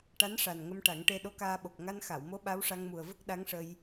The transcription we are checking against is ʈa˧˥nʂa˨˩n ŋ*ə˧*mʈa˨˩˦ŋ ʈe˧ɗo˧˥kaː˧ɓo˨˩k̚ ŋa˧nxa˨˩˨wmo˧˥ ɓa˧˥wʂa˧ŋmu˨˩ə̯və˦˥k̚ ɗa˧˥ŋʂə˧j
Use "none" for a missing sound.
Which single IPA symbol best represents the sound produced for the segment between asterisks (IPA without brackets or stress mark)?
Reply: ə˧